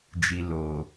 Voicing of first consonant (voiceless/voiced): voiced